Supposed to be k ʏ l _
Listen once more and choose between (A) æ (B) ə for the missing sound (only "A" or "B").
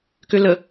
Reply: B